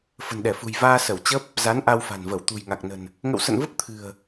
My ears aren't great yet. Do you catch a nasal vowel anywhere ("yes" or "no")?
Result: no